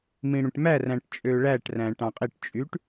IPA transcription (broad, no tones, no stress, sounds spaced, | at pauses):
m ĩ ɽ ũ ʈ m æ r æ̃ ʈ t͡ʃʼ ø ɭ æ ʈ r æ̃ ʈ ɑ̃ qʼ i ʈ t͡ʃʼ y ʈ